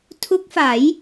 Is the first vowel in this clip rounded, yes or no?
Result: yes